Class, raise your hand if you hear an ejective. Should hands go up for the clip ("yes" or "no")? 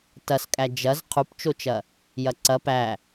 yes